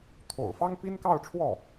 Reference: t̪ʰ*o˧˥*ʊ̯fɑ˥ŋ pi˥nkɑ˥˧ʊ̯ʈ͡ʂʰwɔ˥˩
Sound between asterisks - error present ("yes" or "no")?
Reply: yes